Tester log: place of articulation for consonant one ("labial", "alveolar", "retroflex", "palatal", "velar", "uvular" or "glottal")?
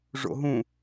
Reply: retroflex